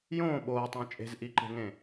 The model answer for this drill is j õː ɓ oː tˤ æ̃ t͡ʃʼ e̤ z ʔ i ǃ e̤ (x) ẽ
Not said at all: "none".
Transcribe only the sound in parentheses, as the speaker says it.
ŋ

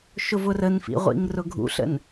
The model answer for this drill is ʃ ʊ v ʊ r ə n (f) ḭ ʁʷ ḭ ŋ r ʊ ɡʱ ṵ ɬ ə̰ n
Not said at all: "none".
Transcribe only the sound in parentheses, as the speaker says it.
f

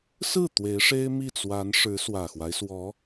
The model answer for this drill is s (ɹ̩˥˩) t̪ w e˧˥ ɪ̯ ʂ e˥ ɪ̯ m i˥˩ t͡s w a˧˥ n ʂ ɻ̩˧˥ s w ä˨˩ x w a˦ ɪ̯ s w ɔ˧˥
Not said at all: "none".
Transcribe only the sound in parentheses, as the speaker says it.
ɹ̩˥˩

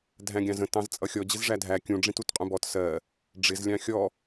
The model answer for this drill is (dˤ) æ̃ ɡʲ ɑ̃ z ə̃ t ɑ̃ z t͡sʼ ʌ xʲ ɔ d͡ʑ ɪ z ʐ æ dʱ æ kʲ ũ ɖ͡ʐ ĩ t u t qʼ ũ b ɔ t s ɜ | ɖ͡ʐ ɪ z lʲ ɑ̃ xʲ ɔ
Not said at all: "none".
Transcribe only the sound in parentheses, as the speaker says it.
dʱ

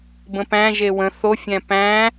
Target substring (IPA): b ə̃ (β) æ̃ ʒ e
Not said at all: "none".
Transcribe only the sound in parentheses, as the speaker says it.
p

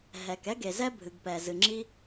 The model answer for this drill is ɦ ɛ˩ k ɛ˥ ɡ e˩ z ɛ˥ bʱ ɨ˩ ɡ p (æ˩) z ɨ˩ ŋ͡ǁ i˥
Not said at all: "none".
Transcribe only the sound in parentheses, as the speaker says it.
ɛ˩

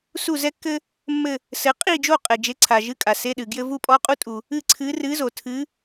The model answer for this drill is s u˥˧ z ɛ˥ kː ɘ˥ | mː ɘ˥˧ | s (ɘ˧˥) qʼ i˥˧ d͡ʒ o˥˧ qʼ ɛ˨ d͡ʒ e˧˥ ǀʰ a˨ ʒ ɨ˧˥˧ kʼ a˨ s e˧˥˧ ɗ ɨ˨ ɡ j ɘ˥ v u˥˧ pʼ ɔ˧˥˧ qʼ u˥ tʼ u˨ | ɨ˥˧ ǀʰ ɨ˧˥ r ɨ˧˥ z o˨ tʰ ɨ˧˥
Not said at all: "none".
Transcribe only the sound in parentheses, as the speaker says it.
ɘ˧˥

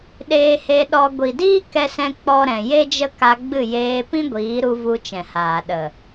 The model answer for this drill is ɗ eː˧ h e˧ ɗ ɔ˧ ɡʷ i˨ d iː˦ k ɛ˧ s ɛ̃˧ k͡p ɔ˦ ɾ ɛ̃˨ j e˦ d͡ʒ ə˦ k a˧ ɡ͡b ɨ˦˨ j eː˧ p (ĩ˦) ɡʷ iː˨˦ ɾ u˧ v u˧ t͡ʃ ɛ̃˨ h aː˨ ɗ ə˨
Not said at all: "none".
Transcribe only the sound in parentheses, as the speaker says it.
ĩ˦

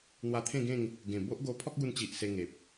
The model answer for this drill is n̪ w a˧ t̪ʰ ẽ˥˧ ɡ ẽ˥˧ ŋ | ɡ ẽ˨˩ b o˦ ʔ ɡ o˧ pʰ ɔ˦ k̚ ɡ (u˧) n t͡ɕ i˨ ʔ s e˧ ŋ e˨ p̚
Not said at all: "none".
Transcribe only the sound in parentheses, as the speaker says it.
u˧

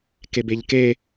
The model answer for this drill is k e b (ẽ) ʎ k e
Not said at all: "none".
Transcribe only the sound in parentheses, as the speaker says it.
e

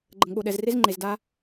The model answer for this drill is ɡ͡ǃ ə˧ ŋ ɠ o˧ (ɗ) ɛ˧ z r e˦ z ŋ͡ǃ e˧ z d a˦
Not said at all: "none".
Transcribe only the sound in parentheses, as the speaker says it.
ɗ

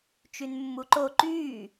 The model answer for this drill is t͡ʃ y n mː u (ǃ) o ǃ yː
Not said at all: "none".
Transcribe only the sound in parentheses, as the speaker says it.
ǃ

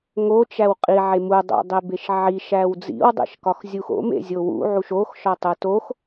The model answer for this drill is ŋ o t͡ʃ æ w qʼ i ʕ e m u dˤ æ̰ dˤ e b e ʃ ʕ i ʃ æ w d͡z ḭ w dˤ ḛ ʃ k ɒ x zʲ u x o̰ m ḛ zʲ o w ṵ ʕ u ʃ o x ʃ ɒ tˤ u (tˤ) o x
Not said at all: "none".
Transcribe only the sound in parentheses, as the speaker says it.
t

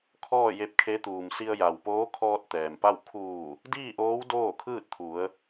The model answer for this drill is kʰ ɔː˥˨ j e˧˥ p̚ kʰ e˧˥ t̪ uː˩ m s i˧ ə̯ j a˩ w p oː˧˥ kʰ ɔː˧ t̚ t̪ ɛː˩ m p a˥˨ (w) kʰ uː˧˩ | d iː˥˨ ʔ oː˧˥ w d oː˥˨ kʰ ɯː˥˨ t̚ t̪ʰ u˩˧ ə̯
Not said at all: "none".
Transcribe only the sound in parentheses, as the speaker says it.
w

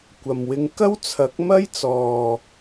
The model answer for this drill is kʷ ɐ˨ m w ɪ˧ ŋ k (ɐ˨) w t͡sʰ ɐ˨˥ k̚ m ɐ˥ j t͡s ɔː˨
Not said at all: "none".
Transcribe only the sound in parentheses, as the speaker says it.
ɐ˥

